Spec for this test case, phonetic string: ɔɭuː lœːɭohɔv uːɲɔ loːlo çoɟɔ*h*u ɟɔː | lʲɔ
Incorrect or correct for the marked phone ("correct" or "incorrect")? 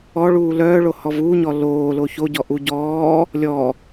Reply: incorrect